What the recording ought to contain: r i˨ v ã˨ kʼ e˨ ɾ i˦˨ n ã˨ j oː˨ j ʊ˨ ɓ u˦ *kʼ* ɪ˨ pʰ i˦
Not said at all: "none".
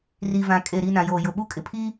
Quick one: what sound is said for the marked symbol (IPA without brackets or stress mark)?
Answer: kʼ